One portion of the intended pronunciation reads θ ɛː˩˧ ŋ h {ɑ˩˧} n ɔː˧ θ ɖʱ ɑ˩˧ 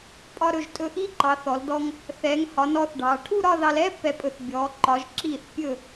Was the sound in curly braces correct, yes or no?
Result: no